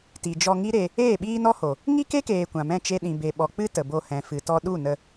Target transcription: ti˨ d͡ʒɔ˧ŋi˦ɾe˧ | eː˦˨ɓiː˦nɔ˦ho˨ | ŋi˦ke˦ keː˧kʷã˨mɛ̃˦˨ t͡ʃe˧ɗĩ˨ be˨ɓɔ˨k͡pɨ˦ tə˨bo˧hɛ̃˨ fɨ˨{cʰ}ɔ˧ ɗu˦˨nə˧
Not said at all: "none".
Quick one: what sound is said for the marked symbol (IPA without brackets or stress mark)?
t